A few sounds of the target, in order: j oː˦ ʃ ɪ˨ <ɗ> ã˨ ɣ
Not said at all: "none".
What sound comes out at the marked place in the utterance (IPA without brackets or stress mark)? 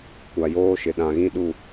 ɗ